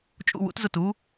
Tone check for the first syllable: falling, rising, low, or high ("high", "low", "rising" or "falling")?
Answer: falling